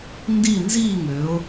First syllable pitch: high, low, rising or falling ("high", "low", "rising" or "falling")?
falling